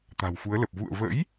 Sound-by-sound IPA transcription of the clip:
t̪ a̤˨˩ w f u˨˦ ə̯ l ə˨˩ p̚ v ṵ˧˨ ə̯ v ə̰˧˥ j

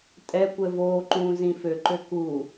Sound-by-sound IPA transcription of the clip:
tʼ ɛ kʷ ɛ v oː ǃ ũː z ĩ f ø ǃ ø k u

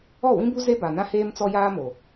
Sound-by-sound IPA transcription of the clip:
ɔ˦˨ w ĩ˦ b u˦ z e˦ b a˨ n ã˦ h eː˦ m t͡s ɔ˦ j aː˦ m o˨

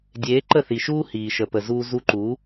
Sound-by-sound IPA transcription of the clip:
dʲ eː˨˦ ǃ ə˦˨ θ i˨ ʃ uː˦ h iː˨ ʃ ə˨ p ə˨ z uː˧ z u˧ ǃ u˨˦

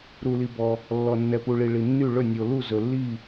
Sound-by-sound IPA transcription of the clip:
ɾ u˨ l i˨ b ɔ˨ | lː ɔ˨ nː ɛ˨ p u˨ ɭ i˨ ɭ i˨ nː y˥˨ ɭ ɵ˥˨ nʲ o˨ l u˥˨ z ɵ˨ lː i˥˨

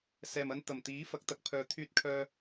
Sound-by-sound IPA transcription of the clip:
s ɛː˨ m ɐ˧ n t̪ ɐ˨˩ m t̪ iː˨˥ f ɐ˨˥ k̚ t̪ ɐ˧ k̚ pʰ œː˧ t̪ʰ yː˧ t̚ kʰ œː˧

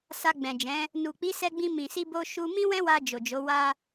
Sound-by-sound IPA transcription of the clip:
s a˧ ɡ͡b ɛ̃˨ d͡ʒ ɛ̃˨˦ | n u˨ k͡p i˨˦ s ɛ˧ ɡ͡b ĩ˧ m ĩ˨ s i˧ b o˧ ʃ u˧ m ĩ˦ w ɛ̃˦ w a˧ d͡ʒ o˨ d͡ʒ o˨˦ w a˦

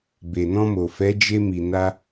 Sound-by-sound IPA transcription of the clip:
b e˨ n ɔ̃˧ m o˨ f ɛ˨˦ d͡ʒ e˧ m i˨ n a˧

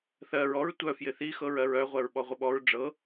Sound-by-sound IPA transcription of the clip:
θ ɜ ɹ ɔ ɹ tʷ œ f j ɪ θ i x ɤ ɹ ɜ ɹ œ ʁʷ ɜ ɹ ɓ ɔ ʁʷ ɪ ɓ ɔ ɹ ɖ͡ʐ ɤ

